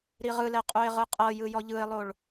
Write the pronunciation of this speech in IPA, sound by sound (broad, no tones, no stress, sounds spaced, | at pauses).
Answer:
ɾ i ʁ ɯ l ɛ qʼ u ɪ̯ ʁ ɯ qʼ ɤ j ɯ j ɔ ʎ ɯ ɪ̯ lˠ o ɭ